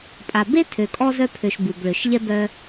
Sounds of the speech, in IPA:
pʼa˨be˦ tʰø˨kʼɔ˧ zœ˧pʰø˨ʃ bu˨bɭʏ˨ʃʎɛ˦ bœ˧

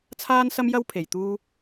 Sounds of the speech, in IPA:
t͡sʰaː˥nsɐ˥m jɐ˥wpʰe˨jt̪uː˥

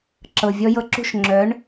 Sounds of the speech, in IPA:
ǁɤ˩ vʲɔ˧jɤ˧ǁṳ˥˩ʃ ŋ͡ǁœ˩˥ɳ

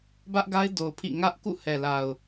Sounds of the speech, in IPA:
bä˦ʔɡa˦ɪ̯do˨ʊ̯pʰḭ˦˨ ŋä˦ʔ kṵ˦˨hɛ˨la˨ʊ̯

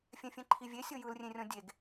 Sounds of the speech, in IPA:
fʲɛ̃fʲɛ̃ǃʰivʲe sʲɤjɯlrʲẽrʲɔ̃ dʲeɡ

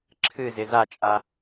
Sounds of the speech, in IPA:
ǁʰɨzɪ zat͡ʃʼa

